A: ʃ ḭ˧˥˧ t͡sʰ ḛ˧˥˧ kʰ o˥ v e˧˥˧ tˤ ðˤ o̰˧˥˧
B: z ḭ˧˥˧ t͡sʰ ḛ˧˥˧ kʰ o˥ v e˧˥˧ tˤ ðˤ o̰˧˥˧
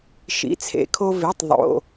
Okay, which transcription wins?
A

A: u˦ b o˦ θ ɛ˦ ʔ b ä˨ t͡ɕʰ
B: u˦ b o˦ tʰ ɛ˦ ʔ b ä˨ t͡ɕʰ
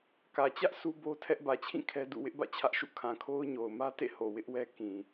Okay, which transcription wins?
B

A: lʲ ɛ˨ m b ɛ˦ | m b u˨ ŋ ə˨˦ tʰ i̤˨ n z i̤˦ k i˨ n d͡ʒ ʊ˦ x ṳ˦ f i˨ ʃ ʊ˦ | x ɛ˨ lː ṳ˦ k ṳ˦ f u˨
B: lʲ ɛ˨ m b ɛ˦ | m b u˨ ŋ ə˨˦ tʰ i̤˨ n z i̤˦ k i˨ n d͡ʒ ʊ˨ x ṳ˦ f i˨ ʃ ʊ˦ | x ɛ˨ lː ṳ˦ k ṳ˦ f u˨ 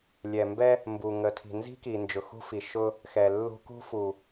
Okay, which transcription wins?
B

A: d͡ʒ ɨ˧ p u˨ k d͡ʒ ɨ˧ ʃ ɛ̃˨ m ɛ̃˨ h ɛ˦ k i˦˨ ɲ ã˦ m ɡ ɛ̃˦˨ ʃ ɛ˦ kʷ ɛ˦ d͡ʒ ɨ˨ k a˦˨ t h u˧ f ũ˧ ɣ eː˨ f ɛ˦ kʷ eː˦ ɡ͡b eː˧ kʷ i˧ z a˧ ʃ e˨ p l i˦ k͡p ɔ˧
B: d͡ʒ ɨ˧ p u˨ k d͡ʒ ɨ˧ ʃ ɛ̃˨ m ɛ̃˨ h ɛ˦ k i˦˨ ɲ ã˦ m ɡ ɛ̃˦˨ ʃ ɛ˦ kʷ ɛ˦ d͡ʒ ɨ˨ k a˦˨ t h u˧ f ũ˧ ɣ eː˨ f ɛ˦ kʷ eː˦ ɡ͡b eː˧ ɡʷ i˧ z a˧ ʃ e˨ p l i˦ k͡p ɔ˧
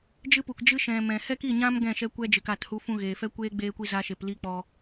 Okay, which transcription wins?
A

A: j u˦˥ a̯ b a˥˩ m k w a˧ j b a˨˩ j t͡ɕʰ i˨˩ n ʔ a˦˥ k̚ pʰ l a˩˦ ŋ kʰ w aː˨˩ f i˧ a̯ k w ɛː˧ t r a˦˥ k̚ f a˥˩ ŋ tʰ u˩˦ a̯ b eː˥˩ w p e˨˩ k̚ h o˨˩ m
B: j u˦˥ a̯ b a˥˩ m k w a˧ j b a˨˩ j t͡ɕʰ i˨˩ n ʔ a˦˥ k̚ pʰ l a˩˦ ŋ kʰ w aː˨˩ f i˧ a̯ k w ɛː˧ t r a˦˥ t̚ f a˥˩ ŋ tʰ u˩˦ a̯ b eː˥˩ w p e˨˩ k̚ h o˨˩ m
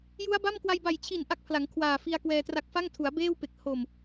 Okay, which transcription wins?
A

